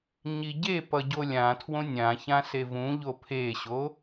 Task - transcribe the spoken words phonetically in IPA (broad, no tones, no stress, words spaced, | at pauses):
ɲiɟepʌ ɟolʲãtʰwõ nʲãçã sevũʎo pʰeɕo